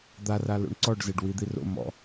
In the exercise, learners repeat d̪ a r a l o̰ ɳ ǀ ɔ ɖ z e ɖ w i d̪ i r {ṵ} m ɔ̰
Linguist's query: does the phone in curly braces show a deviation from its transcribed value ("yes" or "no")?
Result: yes